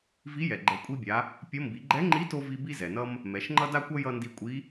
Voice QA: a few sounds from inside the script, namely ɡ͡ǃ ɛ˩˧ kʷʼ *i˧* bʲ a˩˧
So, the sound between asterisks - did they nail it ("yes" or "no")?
yes